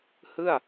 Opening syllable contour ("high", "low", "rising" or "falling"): falling